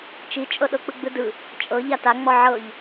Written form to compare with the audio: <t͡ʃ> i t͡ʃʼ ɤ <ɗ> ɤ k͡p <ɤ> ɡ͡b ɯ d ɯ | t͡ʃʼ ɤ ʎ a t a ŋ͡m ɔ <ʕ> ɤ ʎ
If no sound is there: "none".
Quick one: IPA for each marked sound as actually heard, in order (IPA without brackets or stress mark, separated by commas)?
t͡ʃ, ɗ, ɯ, ʕ